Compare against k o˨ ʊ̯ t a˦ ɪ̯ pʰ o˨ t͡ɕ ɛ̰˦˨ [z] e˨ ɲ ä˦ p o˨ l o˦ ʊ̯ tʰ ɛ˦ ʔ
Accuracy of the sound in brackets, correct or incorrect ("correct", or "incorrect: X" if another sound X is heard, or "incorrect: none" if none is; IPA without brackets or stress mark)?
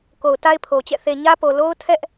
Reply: incorrect: θ